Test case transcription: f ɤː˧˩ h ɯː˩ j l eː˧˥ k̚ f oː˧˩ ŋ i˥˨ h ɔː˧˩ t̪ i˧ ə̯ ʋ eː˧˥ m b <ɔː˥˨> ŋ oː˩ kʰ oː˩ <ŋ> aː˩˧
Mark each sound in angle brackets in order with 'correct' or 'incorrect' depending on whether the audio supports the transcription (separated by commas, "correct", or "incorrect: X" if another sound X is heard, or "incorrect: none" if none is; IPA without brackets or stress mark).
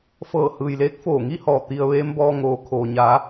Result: incorrect: ɔː˧, incorrect: ɲ